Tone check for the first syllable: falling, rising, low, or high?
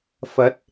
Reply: rising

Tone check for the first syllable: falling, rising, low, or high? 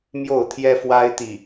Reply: falling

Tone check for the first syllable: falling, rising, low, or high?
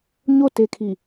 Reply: falling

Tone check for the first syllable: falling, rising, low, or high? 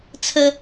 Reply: high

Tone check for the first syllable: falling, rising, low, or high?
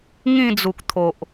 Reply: falling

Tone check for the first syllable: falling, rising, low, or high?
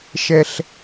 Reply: high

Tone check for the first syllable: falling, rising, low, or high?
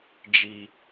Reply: low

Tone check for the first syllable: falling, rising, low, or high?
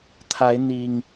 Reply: rising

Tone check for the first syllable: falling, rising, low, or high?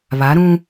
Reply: rising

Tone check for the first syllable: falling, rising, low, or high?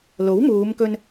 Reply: rising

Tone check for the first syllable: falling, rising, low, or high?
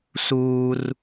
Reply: high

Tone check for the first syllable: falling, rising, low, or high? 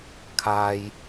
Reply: low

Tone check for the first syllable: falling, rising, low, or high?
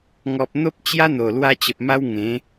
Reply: low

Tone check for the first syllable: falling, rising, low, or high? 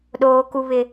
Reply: low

